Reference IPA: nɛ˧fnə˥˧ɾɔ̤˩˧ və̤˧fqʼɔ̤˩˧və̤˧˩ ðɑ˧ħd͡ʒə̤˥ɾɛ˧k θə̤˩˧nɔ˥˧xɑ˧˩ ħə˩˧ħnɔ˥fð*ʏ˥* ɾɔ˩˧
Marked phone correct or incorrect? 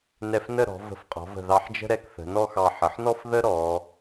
incorrect